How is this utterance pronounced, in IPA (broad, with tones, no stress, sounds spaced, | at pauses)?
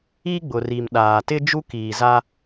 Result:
i˦ ɡ͡b ʊ˨ r i˨ m ɗ aː˨ t ɪ˦ d͡ʒ u˦ k iː˨ z a˦